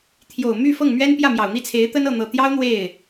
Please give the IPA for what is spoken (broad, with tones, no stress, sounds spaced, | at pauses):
t̪ʰ j o˨˩ ʊ̯ m y˥˧ f ɤ˥˩ ŋ m ɥ ɛ˥ n p j ä˥˩ m j ɑ˨˩ ʊ̯ n̪ i˥˩ t͡sʰ e˧˥ ɪ̯ t̪ ə˥ n ɤ˥˩ n̪ ɤ˨˩ t̪ j ɑ˥ ʊ̯ n̪ w e˥˩ ɪ̯